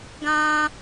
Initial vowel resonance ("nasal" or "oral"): nasal